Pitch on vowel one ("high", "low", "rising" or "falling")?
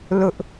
high